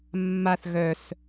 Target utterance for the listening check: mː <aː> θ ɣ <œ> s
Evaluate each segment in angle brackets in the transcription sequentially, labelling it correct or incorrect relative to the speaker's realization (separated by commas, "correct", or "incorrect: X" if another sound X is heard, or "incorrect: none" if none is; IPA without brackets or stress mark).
incorrect: a, correct